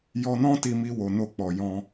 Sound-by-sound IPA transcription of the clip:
jɔ˧nɔ̃˦ti˧mi˧ wo˧no˦k͡pɔ˧ jɔ̃˦

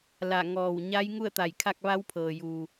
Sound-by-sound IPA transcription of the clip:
la˧˩ ŋɔː˧˩w ɲa˧˥j ŋu˥˨ə̯t̪a˧˩jkʰa˥˨k̚ ʋa˧˥wpʰɤː˩juː˩

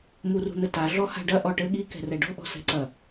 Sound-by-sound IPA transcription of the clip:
murṳn̪ɘta ɮɔha̤ɖɐ ʔɔʈɘ ɠi kɛ̤rɛɖɔ̤ ʔɔ̤sɛ̤ǀɐ

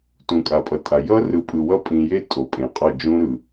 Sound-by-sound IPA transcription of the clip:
tũ˨kʼa˨pʼʌ˨tʼa˨ jʌ˦ rɯ˨pʼɯ˨wʌ˦ pʼĩ˨je˦ tʼo˨pʼẽ˨ qʼʌ˦˨d͡ʒũ˦ɾɯ˨

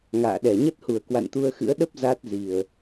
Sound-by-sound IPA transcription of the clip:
ŋa̰ː˧˨ɗɛ˧˩ ɲə˦˥t̚hu˧˩ə̯ kwa̰˧˨nt̪u˧ə̯xɨ̰˧˥ə̯ ɗə˦˥p̚ za˦˥t̚zi˨˩ə̯

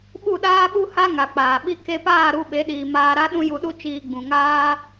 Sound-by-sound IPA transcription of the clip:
ɓu˦˨ɗaː˦ɓu˦ha˦ ŋa˨k͡paː˨ ɓi˧ke˧paː˦˨ ɾu˧ɓe˨˦ɗiː˨ maː˧ɾa˦ ɗũ˦ju˧ɗu˦ t͡ʃiː˧ ɡ͡bũ˨ŋaː˦

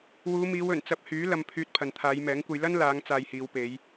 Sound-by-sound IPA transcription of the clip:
wuː˨˧miː˨˧wɵ˨˩n t͡sɐ˧p̚hyː˨˥ lɐ˧mpʰyː˧t̚ pʰɐ˨nt̪ʰaː˨˧jmɛː˨˥ŋkʷɐ˧j lɐ˥nlaː˨˧ŋ t͡saː˧jhiː˨˧w pe˨˧j

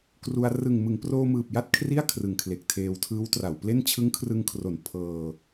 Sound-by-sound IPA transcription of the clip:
kru˧a̯ rɯ˨˩ŋmɯ˩˦ŋproː˧mɯː˨˩p̚ ja˥˩t̚ kʰri˥˩a̯kʰrɯ˨˩ŋkʰle˨˩k̚ tʰeː˧wtʰɯː˦˥wtra˩˦wple˥˩n t͡ɕʰɯ˦˥ŋkʰrɯ˧ŋkʰro˩˦n pʰɤː˧

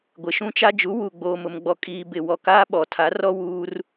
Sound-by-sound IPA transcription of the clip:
ɡʷɪ˨ʃũ˦t͡ʃa˦ d͡ʒu˨˦ wu˨ ɡ͡boː˨mʊ˨mɡ͡bɔ˨ kʼiː˨ bɪ˨wɔ˨kaː˦ ɓɔ˨tʰa˨˦rɔ˦ wuː˦r

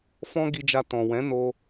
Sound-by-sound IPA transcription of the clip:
fɔ̃˦ɡi˧d͡ʒa˧ tɔ̃˨ wɛ̃˨˦no˧

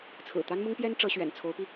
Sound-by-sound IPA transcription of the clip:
t͡sʰɹ̩˨˩t̪a˥nmʊ˥ŋpjɛ˥n ʈ͡ʂɤ˧˥ ɕɥɛ̰˨˩n t͡sʰo˧˥ʊ̯pi˧

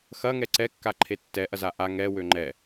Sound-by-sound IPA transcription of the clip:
xɐŋɛ ǀɛkːaǃʰe tːɛʔɐza ʔa ŋɛ wøŋ͡ǃɛ

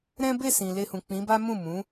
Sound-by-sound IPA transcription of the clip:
ɾɛ̃˦ be˦˨sĩ˨ le˧hũ˨k͡pĩ˨˦ba˦ mũ˦˨mũ˨˦

